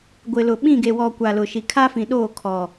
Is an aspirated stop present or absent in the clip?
present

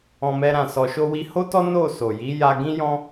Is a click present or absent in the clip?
absent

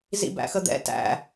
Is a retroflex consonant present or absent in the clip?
absent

